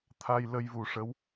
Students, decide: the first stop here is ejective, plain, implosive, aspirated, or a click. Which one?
aspirated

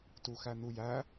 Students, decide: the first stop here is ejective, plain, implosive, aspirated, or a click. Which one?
plain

